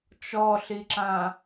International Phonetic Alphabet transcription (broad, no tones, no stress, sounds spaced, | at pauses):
t͡ʃ ɔ ɬ i ǁ ã